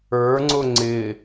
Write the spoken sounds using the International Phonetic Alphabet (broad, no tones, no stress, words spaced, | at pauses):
ə˞ŋ͡ǀʊ ŋ͡ǀɪ